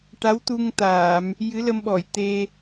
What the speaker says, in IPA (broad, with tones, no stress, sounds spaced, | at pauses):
ʈ a˧˥ w t̪ u˧ ŋ t̪ aː˨˩˨ m | j ɨ˧˥ l ə˧ m ɓ ɔ˨˩˨ j t̪ e˧